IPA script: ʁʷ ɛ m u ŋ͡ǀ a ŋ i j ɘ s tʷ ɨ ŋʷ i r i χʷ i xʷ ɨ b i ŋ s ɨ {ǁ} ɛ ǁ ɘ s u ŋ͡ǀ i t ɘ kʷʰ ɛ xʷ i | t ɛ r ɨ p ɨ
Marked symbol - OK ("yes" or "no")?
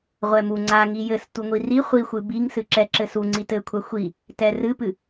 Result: yes